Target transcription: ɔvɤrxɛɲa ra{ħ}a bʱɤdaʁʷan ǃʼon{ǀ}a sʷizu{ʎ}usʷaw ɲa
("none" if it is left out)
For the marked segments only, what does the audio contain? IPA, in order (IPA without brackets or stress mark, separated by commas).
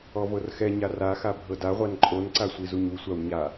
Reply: x, ǀ, ɲ